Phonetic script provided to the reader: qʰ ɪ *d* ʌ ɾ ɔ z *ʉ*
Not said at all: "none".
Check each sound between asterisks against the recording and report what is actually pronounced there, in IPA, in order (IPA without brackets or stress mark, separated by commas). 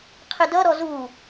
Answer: d, u